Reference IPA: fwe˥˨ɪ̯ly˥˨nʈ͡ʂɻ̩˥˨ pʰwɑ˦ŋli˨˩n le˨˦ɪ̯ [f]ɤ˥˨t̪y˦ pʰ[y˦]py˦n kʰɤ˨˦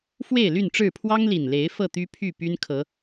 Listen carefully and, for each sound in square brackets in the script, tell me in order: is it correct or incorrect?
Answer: correct, incorrect: y˥˨

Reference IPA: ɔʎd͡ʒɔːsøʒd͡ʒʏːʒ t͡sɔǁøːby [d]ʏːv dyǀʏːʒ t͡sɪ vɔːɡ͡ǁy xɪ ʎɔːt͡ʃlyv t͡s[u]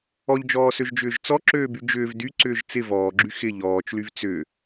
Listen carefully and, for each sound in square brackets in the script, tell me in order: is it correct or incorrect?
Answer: incorrect: d͡ʒ, incorrect: ʏ

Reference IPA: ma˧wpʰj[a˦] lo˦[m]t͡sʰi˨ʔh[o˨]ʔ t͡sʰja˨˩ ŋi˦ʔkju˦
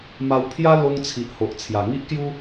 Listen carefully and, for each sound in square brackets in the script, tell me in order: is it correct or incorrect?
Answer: correct, incorrect: ŋ, correct

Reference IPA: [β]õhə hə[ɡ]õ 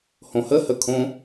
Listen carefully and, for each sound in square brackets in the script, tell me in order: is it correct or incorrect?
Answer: incorrect: h, incorrect: kʰ

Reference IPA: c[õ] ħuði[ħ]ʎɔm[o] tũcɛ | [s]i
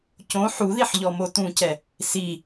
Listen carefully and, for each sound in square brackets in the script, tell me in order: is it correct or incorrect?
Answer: correct, correct, correct, correct

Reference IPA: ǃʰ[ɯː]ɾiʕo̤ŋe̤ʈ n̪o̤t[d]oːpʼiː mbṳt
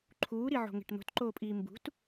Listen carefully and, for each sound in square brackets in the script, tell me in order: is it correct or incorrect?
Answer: incorrect: uː, incorrect: ǃ

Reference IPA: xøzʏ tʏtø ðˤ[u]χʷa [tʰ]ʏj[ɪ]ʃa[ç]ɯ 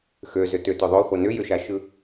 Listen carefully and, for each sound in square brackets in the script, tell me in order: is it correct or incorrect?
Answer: incorrect: o, incorrect: n, incorrect: ʏ, incorrect: ʃ

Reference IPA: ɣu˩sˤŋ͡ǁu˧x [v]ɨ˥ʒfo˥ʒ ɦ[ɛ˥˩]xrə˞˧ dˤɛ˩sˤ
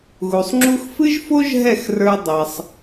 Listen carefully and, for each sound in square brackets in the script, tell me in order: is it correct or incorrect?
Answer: incorrect: f, correct

